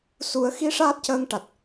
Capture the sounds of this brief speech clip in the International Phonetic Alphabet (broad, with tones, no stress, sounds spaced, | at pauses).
s u˨˩˦ ə̯ x i˧˥ ʂ aː˦˥ t̚ c əː˧ ŋ ʈ a˨˩ t̚